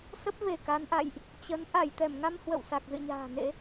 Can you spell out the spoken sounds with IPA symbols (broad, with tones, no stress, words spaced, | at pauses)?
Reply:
sə˦˥p̚ve˧˩ ka˨˦nʔa̰˧˨jʔ | t͡ɕə˨˦n ʔa˧˩jt̪ɛ˧˩mŋa˧m hwə̰˧˨wsa˨˩k̚ zɨ̰˧˨ɲa̤ː˨˩nḛ˧˥